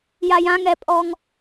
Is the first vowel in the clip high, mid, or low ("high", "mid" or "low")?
low